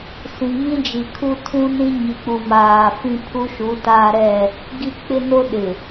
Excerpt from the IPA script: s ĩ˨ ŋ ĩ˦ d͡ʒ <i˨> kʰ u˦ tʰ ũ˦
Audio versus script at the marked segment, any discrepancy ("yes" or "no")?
no